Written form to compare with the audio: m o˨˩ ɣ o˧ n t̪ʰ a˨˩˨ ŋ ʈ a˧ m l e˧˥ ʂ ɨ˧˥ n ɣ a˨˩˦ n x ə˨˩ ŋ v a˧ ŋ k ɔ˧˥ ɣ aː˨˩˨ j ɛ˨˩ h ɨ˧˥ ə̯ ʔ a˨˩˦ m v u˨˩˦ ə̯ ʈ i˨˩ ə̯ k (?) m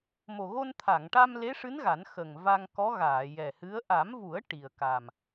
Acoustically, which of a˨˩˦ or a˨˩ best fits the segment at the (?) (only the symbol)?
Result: a˨˩